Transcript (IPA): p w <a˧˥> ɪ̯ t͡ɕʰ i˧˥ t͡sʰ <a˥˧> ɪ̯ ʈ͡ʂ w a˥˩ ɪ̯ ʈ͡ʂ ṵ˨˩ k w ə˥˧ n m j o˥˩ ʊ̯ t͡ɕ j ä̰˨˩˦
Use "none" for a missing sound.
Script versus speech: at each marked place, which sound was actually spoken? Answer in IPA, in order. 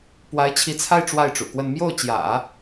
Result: a˧˥, a˥˧

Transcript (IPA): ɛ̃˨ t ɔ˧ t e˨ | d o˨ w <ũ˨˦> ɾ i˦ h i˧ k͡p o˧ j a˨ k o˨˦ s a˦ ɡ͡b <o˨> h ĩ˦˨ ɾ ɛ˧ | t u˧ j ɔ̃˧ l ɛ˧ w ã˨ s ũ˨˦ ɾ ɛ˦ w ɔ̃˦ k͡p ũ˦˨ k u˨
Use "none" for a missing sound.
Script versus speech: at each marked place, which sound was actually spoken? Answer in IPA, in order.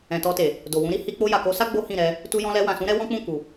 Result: ũ˨˦, o˦

